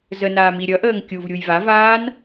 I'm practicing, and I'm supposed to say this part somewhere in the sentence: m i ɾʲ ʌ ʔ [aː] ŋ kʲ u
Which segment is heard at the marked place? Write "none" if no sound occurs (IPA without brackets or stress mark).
əː